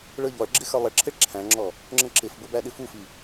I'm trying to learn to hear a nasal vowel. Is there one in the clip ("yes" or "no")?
yes